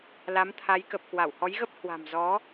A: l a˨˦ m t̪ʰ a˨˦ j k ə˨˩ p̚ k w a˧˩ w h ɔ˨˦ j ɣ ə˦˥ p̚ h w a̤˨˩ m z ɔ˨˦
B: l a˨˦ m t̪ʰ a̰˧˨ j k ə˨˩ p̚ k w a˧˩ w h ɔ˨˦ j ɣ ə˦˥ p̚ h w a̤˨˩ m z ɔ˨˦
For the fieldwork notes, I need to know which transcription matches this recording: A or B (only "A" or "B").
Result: A